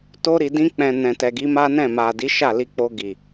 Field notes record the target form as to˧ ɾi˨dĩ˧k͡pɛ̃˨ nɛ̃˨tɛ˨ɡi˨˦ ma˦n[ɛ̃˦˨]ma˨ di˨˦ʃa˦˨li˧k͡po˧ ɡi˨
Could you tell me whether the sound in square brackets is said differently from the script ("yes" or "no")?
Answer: no